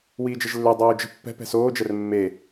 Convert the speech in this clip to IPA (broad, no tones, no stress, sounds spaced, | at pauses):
w iː d͡ʒ ɛ ʒ lː ø dˤ oː d͡ʒ ə̤ pː ɛ̤ p ɛ̤ s oː d͡ʒ ɛ r mː e